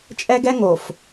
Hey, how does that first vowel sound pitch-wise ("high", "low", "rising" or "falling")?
high